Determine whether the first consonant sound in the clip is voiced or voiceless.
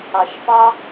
voiceless